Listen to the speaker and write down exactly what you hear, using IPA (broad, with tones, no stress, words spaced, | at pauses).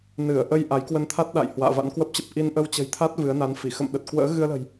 nɨ˧˩ə̯ʔə˧j ʔa˨˦jkwə˧nt̪ʰa˦˥t̚ɗa̰˧˨j hwa̰ː˧˨va̰˧˥nkwə˦˥p̚t͡ɕə˦˥p̚ ʔi˧nʔə˧wt͡ɕə̤˨˩jt̪ʰa˦˥t̚ vɨ˨˦ə̯na˨˦nfi˧˩ xə̰˧˨mɗə˨˩t̚ kwə̰ː˧˥ ɣɨ˧ə̯lə̤˨˩j